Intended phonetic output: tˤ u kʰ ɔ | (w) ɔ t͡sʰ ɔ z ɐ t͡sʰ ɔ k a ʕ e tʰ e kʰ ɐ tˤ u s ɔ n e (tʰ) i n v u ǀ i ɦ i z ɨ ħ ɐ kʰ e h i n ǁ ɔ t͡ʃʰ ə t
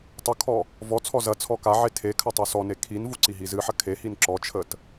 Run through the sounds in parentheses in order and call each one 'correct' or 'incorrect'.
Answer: incorrect: v, incorrect: kʰ

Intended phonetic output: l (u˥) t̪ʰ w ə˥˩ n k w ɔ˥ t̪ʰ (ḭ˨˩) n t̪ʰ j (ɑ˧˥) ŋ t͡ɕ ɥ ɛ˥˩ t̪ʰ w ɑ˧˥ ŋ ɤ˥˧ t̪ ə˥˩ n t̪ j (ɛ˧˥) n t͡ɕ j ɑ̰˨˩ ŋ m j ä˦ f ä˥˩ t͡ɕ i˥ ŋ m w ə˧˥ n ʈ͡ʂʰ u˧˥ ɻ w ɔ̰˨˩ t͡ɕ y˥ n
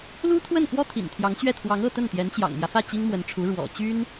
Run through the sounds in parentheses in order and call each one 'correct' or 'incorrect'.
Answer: correct, correct, correct, correct

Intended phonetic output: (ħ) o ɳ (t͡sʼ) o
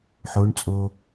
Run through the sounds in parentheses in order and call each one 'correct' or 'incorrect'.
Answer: correct, correct

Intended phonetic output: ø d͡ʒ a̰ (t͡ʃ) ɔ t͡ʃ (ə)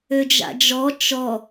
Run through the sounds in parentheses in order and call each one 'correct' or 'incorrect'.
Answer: incorrect: d͡ʒ, incorrect: ɔ

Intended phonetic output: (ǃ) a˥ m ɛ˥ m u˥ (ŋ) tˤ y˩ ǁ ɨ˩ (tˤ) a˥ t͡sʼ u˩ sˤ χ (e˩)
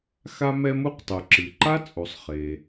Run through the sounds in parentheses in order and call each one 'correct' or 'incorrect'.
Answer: incorrect: x, incorrect: q, incorrect: ǃ, correct

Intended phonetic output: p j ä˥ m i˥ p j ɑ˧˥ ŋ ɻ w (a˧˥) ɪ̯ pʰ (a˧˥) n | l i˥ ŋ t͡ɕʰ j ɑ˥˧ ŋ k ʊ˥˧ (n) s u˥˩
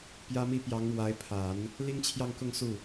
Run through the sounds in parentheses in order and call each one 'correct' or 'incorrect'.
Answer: correct, incorrect: a˨˩˦, incorrect: ŋ

